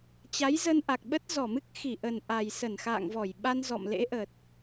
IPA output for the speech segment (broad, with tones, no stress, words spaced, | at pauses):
t͡ɕa˨˦jzə˧nʔa˨˩k̚ɓə˦˥t̚ zɔ˧˩mɨ˦˥k̚ xi˧˩ʔə˨˩n ʔa˨˩j sə˧˩nxa̰ː˧˨ŋvɔ˧˩j ɓa˧nzɔ̰˧˨mlḛ˧˥ʔə˨˩t̚